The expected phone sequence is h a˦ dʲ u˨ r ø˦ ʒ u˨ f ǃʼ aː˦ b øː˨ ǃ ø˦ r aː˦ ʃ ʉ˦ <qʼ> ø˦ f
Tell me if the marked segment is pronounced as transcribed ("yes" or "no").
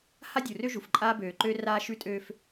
no